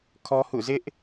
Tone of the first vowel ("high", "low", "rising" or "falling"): high